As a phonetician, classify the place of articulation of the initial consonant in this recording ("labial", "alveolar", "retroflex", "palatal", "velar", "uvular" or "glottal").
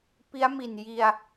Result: labial